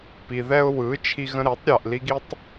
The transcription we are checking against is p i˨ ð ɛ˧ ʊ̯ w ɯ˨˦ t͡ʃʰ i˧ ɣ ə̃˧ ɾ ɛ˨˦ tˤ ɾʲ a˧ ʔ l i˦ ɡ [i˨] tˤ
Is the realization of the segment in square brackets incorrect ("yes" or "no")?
yes